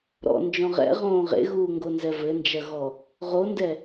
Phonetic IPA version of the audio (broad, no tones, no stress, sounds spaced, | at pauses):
ɾ ɔ̰ n d͡ʒ ɔ̃ ʁ ɛ̰ ʁ õː ʁ ḛ ɣ uː ŋ ɡ o n z ɛ v ɘ n d͡ʒ ɐ ɣ ɔ | ʁ o n d ɛ